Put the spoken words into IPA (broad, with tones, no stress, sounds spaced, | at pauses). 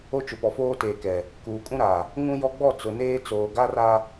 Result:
o˦ t͡ʃ ʊ˨ p ɔ˨ f oː˦ t eː˨ k ɛ˨ | k uː˨ kʼ ũ˦ ɾ a˨ | ŋ ũ˦ j ɔ˦ ɡ͡b ɔ˦˨ t͡s ʊ˨ n eː˦ t͡s oː˨ ɡ a˦ r a˦